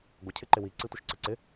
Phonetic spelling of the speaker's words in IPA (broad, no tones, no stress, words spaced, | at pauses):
ɡʷə cʰɪǃɪwi ǀitʷəʃǀəǀɪ